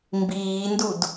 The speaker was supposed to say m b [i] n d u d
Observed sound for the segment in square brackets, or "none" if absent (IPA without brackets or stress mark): iː